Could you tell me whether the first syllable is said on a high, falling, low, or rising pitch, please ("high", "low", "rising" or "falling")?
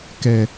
low